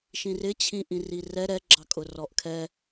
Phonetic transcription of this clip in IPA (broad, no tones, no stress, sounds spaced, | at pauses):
ʃ ĩ r ɪ t͡ɕʰ ĩ ʔ ĩ r i r ɛ ɾ ɛ ɡ͡ǁ ɑ kʼ ʊ r ɔ ʔ kʰ ɛ